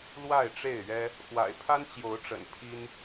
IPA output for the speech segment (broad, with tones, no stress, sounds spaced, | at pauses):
l w a˥˨ ɪ̯ ʈ͡ʂ e˥˨ ɪ̯ ɥ ɛ˦ | x w a̰˨˩ ɪ̯ pʰ a˦ n t͡ɕ j o˨˦ ʊ̯ ʈ͡ʂ ə̰˨˩ n pʰ i˦ n